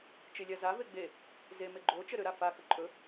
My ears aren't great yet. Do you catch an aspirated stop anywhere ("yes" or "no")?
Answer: no